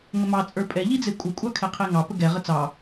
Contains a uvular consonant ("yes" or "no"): yes